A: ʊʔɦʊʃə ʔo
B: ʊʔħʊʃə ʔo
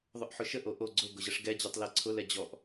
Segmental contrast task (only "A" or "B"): B